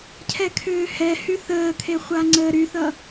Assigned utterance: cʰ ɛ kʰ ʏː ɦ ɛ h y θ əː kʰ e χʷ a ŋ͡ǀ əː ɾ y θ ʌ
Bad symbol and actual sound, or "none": ɦ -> h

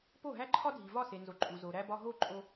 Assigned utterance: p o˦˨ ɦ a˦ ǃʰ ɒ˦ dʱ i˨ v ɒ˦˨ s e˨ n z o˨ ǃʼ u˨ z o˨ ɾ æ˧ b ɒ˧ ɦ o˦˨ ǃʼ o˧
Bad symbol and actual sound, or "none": a˦ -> æ˦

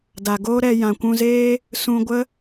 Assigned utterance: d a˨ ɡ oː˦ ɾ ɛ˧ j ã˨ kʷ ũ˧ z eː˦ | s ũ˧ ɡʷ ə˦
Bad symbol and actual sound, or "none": none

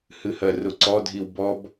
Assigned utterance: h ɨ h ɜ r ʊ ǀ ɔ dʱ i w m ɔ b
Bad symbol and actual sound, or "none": m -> b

